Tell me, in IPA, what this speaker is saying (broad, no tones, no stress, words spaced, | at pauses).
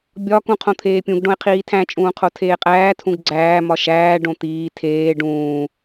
bʲɒ kũqʰõt̪ʰeːpʲũɡ ɖõe̯qʰiːtʰæ̃t͡ʃʼũː qʰotʰeːqʼæːtʰũɡ ɡ͡ǀæː mɒʃæː ɖõt̪iː tʰeː ɖũː